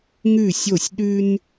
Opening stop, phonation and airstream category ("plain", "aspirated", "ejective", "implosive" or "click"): implosive